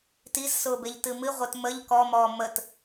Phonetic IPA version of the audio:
t i z s ʊː b e ʎ t ɨ m ɨ ʁʷ e t m ə ʎ k ɔ m ɔː m ə t

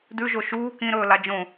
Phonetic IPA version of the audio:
d ʉ ʒ o ʃ uː k ĩ ɾ ɵː l a d͡ʒ õ

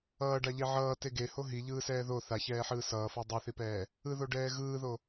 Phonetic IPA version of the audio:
ʌː ɖ a ʎ e ʕ ʌː t e ɡ e h o ɦ i ʎ ɯː s ɛː ð o θ a ç ɛː ħ ɯː s ʌː f o dˤ ʌ θ i p ɛː | ɯ ð o ɖ ɛː ɣ ɯː ð o

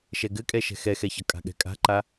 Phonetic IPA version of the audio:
ʃ ɛ ɡ ɘ kʼ ɛ ʃ ɛ̤ x ɛ x ɛ ç ʌ kʼ a̤ ɠ ɛ̤ kʼ a̤ ǃ a

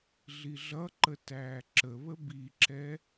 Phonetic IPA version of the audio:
ɮ i ɮ ʌ ǃ ə t æː ǁ ə β ə b i ǁ ɛ

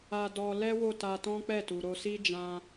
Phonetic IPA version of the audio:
a˧ d ɔ˧ l ɛ˦ w o˦˨ t a˧ t ɔ̃˦ k͡p ɛ˦˨ t u˨ ɾ o˧ s i˦ d͡ʒ ã˧

